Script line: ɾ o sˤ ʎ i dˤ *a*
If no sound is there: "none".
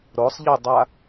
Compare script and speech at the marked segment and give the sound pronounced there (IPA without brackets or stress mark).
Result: a